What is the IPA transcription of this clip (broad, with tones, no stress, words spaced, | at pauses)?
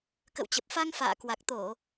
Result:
kə̰˧˨wt͡ɕə˨˩p̚fa˧ŋ fa̰ː˧˨kwa˨˩k̚t̪o˧˩˨